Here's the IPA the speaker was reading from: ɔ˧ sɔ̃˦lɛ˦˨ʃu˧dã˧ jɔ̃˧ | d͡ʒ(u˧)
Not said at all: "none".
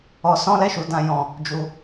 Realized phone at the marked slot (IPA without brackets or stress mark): u˧